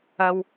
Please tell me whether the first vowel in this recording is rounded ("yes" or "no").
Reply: no